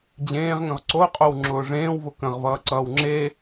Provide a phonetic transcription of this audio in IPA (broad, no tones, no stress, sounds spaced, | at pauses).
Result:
d͡ʑ ẽː ʁ ŋ ə̃ ʁ ǀ o qʼ o w ŋ͡ǁ ʊː ʐ ẽː w v ʊ k ə̃ ʁ v ʌː ǀ ʌː w ŋ͡ǁ e